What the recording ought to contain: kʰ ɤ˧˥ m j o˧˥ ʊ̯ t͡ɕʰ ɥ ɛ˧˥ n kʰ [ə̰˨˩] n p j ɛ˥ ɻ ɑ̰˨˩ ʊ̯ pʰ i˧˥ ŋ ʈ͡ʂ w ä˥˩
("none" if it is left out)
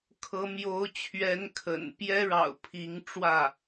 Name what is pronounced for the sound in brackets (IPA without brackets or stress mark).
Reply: ə̰˨˩